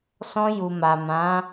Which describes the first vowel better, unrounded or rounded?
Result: rounded